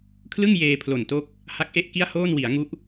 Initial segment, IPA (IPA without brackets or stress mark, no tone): kʰ